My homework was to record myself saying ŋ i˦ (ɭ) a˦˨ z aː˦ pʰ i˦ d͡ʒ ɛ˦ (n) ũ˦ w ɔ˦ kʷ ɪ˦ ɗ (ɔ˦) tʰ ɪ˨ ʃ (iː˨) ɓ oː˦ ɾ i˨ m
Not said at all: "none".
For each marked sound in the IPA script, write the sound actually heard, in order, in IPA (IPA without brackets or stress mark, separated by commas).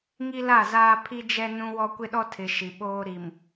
l, n, ɔ˦, i˨